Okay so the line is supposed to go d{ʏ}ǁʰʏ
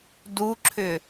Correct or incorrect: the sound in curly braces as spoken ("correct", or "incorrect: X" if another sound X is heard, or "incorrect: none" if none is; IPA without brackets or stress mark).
incorrect: u